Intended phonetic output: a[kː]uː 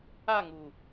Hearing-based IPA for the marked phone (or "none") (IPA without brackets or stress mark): ŋ